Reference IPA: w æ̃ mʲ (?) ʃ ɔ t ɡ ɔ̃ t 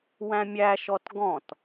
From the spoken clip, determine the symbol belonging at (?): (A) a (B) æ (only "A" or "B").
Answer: B